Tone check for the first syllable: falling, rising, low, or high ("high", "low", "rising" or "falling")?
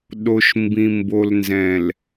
low